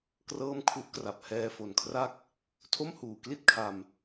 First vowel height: mid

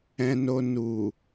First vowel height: mid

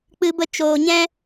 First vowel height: high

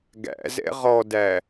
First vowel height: low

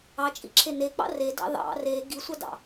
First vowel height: low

